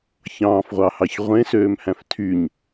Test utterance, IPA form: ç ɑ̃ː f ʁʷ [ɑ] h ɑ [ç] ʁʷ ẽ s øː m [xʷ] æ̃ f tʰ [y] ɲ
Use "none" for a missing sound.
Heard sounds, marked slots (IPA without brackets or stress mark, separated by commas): ɑ, ç, h, y